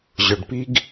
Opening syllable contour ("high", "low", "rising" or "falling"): low